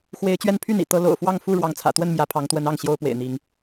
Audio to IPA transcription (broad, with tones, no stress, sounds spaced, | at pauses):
x w e˨˦ ɪ̯ t͡ɕ ɥ ɛ˦ n pʰ y˥˨ n ḭ˨˩ t̪ ɤ˦ l o̰˨˩ ʊ̯ f w ɑ˥˨ ŋ f u˥˨ ɻ w ɑ˨˦ ŋ t͡sʰ ä̰˨˩ t̪ w ə˥˨ n m j ä˨˦ pʰ ɑ˨˦ ŋ t̪ w ə˨˦ n ɑ˥˨ ŋ ɕ j o˦ ʊ̯ p w ḛ˨˩ ɪ̯ n̪ i˨˦ ŋ